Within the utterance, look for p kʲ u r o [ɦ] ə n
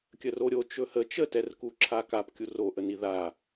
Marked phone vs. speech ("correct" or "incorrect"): incorrect